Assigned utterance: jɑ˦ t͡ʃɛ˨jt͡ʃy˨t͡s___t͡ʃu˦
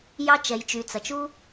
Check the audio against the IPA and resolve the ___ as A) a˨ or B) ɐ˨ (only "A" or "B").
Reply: B